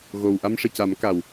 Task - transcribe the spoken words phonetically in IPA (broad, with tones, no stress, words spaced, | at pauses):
ɣo˨˩w ʔa˧mʂɨ˨˩˨ca˨˩˦m ka˨˩w